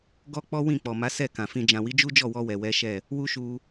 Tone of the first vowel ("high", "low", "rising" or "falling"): high